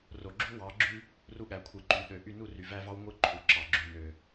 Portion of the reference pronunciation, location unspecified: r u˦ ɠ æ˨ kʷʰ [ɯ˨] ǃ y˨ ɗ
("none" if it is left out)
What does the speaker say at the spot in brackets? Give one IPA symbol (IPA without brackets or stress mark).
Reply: ɯ˨